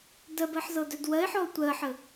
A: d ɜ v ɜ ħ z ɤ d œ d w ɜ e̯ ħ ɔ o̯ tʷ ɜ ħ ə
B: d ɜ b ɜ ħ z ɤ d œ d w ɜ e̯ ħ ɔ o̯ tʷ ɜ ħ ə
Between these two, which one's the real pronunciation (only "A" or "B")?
B